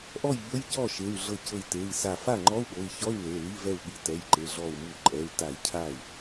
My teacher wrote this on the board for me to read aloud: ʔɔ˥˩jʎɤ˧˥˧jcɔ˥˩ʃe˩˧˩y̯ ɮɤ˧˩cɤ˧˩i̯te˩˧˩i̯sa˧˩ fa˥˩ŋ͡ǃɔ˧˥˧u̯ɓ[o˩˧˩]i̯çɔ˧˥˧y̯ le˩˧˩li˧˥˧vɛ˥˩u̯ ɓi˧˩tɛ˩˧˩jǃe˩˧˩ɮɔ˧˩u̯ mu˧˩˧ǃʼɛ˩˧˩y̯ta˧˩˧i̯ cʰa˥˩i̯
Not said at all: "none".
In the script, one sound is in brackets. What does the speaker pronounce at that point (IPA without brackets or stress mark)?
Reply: o˩˧˩